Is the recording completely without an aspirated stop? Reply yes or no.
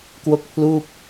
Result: no